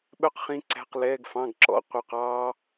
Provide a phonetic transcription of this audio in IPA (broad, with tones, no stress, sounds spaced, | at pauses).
ɓ œ˥ q χ ĩ˧˥˧ ǀ æ̤˧˥˧ q l ɛː˧˥˧ ɡ f ɑ̃˧˥˧ ɡ ǁ ɔ̰˧˥˧ qʷ œ˧ q ɑː˥